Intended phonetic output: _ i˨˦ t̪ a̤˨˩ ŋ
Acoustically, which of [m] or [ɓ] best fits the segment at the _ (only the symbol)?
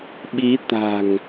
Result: ɓ